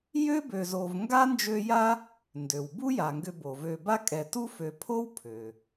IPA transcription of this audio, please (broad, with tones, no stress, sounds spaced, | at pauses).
j ø˥ b ø˨ z o˨ v ŋ ɡ a˥ n d͡ʒ ø˦ j a˥ | n d ø˩ w b u˦ j a˩ ŋ ɡ ʏ˨ b o˩ v ø˨ b a˦ kʼ ɛ˨ t u˦ f ø˨ pʰ o˥ w pʰ ø˩